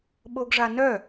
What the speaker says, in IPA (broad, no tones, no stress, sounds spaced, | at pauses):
ɓ o ɡ ʐ a n œ